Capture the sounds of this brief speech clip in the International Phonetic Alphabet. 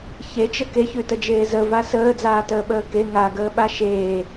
ç e t͡ʃ ə k e ç ʉ t ə d͡ʒ eː z ə v a s əː d͡z aː t əː ɓ əː k e ŋ a ɡ əː ɓ a ʃ eː

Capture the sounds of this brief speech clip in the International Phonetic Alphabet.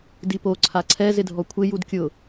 d i p o ǀʰ a ǀʰ ɛ z ɪ dʱ ɔ kʷʰ ɪ j u d kʲ ʊ

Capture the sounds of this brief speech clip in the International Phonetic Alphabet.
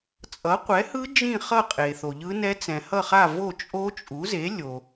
t͡sʼ ʌ˨˥ qʷ ɛ˨˥ h ɯ˦˥ d͡ʒ ĩ˥˧ χ ʌ˥˧ qʼ e˨ θ o˨ ʎ ɯ˦˥ n ɛ˦˥ t͡s ɛ̃˨ h ʌ˥˧ χ a˥˧ v o˥˧ t͡ʃʼ o˦˥ t͡ʃʼ u˨˥ z e˨˥ lʲ o˨

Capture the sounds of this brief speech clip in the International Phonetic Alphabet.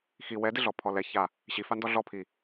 x i w ɛ d ɪ ɮ ɔ pʰ ɔ l ɛ ç a | ɕ i f a n d ɔ ɮ ɔ pʰ i

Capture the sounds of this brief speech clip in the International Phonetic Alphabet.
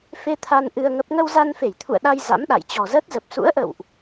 f e˧ t̪ʰ a˧ n ʔ ɨ˧ ə̯ ŋ ə˦˥ p̚ ŋ ə˧ w z a˧ n f e˧˩ j t̪ʰ ṵ˧˨ ə̯ ɗ a˧ j z a̰˧˥ m ɗ a̰˧˨ j t͡ɕ ɔ˨˩ z əː˦˥ t̚ z ə˨˩ p̚ s ṵ˧˥ ə̯ ʔ ə̰˧˨ w ʔ

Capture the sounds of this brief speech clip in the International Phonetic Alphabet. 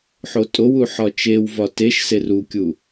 ħ o tʼ o w u ħ ɒ t͡ʃ e w v ɒ t e ʃ s e r u kʲ u

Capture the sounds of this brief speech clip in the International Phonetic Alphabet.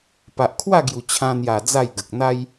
p a˨ ʔ kʰ w a˥˧ ɡ j u˨˩ t͡ɕʰ ã˧ n̪ j a˨˩ d͡z a˥˧ j ɡ ə˨ k̚ n̪ a˧ j

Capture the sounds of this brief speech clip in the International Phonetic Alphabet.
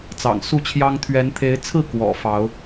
t͡s ɑ̰˨˩ ŋ s u˥˨ t͡ɕʰ j ɑ˦ ŋ t̪ʰ ɥ ɛ˨˦ n t̪ʰ e˨˦ ɪ̯ t͡sʰ ɹ̩˥˨ k w ɔ̰˨˩ f ɑ˨˦ ʊ̯

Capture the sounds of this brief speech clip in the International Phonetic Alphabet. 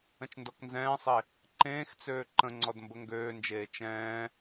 ə̃ t͡ʃ n d ɔ k n z ɛ̃ː sˤ e | ǃ ẽː x t͡s øː ǃ ə̃ ŋ͡ǀ ɔ d m b ə ŋ ɡ øː n d͡ʒ eː t͡ʃ ɛ̃ː

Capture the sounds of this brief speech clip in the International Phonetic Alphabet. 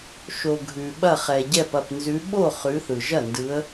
ʃ o˩ ɡʱ ʉ˩ ɓ ɐ˧˩ χ ɛ˩ ɟ ɛ˧˩ p ɐ˧˩ p n z ʉ˨˦ ɓ o˥˩ χ ʉ˨˦ θ ɯ˩ ʒ ɐ˥˩ n d ɯ˨˦ ə̯

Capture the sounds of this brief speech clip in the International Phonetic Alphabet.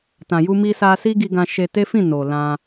t ã˨ j u˧ m i˧ s a˧ s i˦ ɡ i˧ ɡ ã˧ ʃ e˧ t e˦ f ĩ˦˨ n o˨ l ã˧

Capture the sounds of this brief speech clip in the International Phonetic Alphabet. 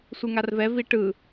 sʷ ɯ ŋ a r v ɛ v i ʈ ɯ

